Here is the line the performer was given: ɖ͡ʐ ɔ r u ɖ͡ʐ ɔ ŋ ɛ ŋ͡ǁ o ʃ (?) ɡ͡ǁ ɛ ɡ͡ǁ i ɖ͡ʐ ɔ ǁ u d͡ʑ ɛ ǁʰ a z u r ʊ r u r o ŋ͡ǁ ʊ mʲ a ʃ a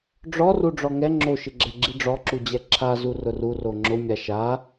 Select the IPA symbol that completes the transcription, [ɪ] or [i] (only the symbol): ɪ